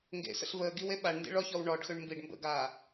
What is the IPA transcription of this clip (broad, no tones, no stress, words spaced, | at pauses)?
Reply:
ŋɡḛsə̰ɬ vəːɡiw eɓaɳndḭ ɭɔçɔw ɳɔɖxʏɳ mbiɖ mbə̰ɡaː